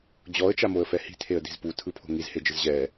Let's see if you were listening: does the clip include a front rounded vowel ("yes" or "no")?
no